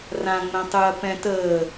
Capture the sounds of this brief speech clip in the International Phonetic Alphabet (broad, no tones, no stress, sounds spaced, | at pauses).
r ã ŋ͡m ɛ̃ tˤ ɯ ɐ̯ p ɛ̃ t əː